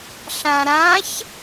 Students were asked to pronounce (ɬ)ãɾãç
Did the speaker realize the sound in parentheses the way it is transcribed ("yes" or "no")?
yes